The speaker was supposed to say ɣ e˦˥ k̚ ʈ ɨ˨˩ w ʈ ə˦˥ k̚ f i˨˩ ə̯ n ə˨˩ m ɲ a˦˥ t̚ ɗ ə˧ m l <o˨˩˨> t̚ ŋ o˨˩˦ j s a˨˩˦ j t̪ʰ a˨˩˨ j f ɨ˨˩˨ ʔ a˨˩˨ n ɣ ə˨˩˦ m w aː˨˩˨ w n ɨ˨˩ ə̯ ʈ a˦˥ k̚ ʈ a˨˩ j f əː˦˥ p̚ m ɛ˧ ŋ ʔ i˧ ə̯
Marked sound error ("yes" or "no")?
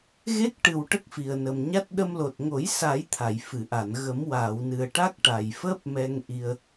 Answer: yes